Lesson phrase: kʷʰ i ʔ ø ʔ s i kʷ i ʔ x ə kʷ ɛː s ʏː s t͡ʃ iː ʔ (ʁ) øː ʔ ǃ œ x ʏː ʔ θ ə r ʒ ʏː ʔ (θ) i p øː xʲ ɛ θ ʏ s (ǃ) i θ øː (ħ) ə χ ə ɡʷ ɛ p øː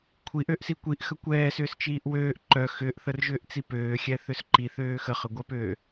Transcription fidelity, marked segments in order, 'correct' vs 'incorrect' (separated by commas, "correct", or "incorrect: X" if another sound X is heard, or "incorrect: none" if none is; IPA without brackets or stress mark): incorrect: w, incorrect: t͡s, correct, incorrect: x